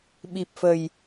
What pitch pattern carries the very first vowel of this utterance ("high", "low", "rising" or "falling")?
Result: low